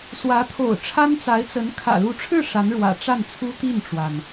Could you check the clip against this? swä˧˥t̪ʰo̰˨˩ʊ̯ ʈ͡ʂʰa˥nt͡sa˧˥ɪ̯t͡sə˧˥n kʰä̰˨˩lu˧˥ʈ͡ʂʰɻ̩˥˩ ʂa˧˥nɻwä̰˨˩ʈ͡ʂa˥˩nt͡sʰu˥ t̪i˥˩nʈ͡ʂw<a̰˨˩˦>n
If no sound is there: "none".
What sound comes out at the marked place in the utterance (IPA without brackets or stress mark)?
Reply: a˩